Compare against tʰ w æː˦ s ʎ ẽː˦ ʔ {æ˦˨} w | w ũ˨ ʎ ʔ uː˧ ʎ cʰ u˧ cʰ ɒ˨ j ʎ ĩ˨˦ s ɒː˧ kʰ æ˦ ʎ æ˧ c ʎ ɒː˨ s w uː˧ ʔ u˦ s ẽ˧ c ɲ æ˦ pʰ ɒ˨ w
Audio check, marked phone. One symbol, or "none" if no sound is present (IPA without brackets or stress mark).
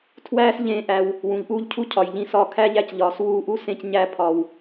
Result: æ˧